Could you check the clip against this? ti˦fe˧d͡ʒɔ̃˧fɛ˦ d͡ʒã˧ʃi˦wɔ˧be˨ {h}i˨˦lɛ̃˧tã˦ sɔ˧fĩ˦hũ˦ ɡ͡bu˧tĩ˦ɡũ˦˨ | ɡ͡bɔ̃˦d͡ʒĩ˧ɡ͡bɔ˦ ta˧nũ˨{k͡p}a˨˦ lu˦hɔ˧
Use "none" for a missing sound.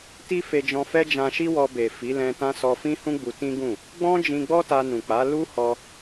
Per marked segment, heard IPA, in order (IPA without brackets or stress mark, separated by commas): f, k͡p